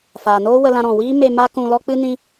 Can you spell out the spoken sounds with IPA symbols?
faː˨noː˦wə˧lã˧ ɾɔ̃˨wiː˦me˧ ma˦kũ˧lɔ˦ k͡pɨ˦ nĩ˦

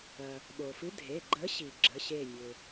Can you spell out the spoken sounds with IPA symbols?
ɐ˩ | ɓo˩fɨ˨˥dʱe˩˧˩ ɡ͡ǃə˨˥ɕi˩ ɡ͡ǁə˩˧˩ɕe˧˩mʲø˩

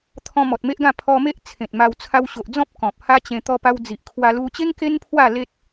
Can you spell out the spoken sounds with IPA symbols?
t̪ʰɔ̃˧mɔ˨t̚me˦ʔɡã˥˧ pʰɔ˧me˦ʔ t͡sʰẽ˨t̚ma˧w t͡sʰa˧wɕo˨ʔd͡zɔ̃˦p̚ kɔ̃˨p̚ ha˦t͡ɕẽ˧ t̪ɔ˧pa˧wd͡zi˨ʔkʰwa˧ lu˧t͡ɕe˦ŋ ke˦n pʰwa˥˧ le˦t̚

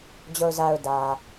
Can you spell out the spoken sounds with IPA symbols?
d͡ʑo˨ʊ̯za˨ʊ̯ dä˨

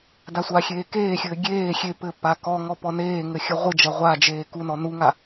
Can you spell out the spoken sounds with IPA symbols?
dasʷaxʲeː keːxʲɘː ɡʲeː xʲe pɘ pakɔŋɔ pɔneːŋɘ xʲɐʁʷɨd͡ʒɐ ʁʷad͡ʒeː kunɔ nuŋa

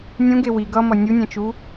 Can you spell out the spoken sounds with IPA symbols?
nʲũɡe wiɡ ʌmʌ nʲunʲɛ̃t͡ʃu

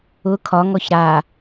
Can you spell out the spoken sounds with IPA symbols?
ʊ kʰɒŋɔç ɾa

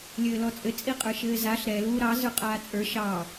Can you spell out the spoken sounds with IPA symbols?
lʲɘːlɔt͡sʼɘ t͡sʼiqʼə˞ʃɘːzaɬ ɾɛ luːɾɑ zə˞qʼaːt͡sʼə˞ ʃɑ

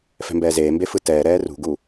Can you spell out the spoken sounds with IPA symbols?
fɛ̤mbɛːzeːmbe fɯtɛːɾɛː rṳɡu

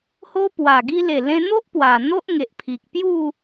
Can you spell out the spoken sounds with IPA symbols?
ho˦pwa˨˩ ɡi˧le˨˩lẽ˧n̪o˦ʔ pwa˨˩ n̪o˦ʔŋe˨ʔpʰi˨k̚pju˥˧

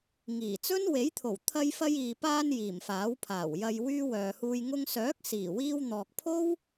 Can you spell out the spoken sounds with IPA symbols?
ŋiː˨˩t͡sɵ˥n we˨˥jt̪ʰo˨˩w t̪ʰɐ˧jfɐ˧jiː˨paː˧n jiː˨˩mfaː˨˥wpʰaː˨˩w jɐ˨jwyː˧ wœː˨huː˧j ŋʊ˧ŋsœː˨˥k̚ siː˨˩wiː˧wn̪ɔː˨k̚pʰo˥w

